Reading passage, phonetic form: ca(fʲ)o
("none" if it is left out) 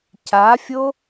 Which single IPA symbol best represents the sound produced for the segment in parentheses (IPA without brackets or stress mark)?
fʲ